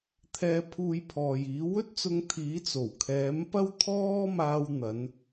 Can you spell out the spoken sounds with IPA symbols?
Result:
t̪ʰ ɛː˧ pʰ uː˧ j pʰ ɔː˨ j iː˨˥ w ɵ˥ t̚ t͡s ʊ˧ ŋ t̪ʰ iː˨˥ t͡s o˨˩ w kʰ ɛː˨˥ m p ɐ˥ w t̪ʰ ɔː˥ m aː˧ w n̪ ɐ˨˧ n

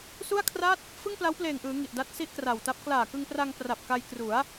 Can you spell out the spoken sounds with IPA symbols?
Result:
s u˥˩ a̯ kʰ r a˥˩ t̚ | f ɯ˥˩ ŋ p l a˦˥ w p l eː˨˩ ŋ ʔ ɯː˩˦ ŋ i˨˩ ʔ d a˦˥ t̚ s i˥˩ ʔ k r a˨˩ w t a˦˥ p̚ k l aː˨˩ k ɯ˧ ŋ p r a˧ ŋ p r a˨˩ p̚ k a˧ j k r u˩˦ a̯

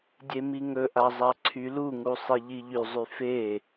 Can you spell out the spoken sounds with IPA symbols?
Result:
dʲ e m i ŋ ɵ ʔ a zˤ a ǀʰ y l u ŋ u sˤ i ʎ i ʎ y zˤ y f e

